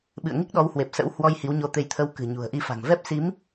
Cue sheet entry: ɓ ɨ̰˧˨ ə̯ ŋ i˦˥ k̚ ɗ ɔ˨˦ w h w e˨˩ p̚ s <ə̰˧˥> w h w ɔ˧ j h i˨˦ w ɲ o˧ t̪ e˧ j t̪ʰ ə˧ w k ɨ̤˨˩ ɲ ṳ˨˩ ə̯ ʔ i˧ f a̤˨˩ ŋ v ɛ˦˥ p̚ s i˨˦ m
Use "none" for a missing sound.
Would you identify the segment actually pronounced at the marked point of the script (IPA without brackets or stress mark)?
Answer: ə̰˧˥